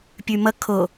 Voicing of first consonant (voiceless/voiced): voiceless